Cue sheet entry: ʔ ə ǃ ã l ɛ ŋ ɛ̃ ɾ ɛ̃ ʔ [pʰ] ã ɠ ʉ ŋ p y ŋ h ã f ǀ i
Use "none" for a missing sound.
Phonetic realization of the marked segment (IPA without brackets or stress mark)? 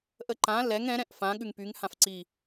f